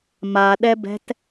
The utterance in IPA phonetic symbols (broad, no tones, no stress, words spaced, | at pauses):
maɗɛbɛ̤t